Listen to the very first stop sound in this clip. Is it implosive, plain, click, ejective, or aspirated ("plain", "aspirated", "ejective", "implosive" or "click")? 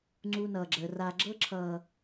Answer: click